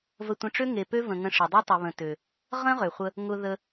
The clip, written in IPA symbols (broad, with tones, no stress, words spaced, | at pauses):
və˧tʷə̃˧ʈ͡ʂø˦ ŋe˨pø˦və̃˨ ŋə̃˧ʂɪ˨dˤe˦ tˤɪ˨βə̃˨tø˨ | ʁə̃˦ʁø˨χʷə˧ | ŋʊ˧ðə˧